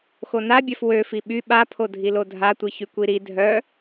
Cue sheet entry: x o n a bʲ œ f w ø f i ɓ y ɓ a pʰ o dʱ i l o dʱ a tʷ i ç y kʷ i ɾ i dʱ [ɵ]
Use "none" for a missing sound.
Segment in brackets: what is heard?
œ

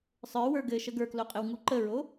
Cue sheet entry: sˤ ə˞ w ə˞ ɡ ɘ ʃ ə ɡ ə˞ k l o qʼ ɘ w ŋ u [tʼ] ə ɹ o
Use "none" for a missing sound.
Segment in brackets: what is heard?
ǃ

